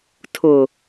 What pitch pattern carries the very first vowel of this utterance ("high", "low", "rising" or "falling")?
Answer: low